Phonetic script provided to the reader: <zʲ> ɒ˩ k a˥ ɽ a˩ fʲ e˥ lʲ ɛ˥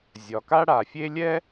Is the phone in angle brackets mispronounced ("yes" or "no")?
no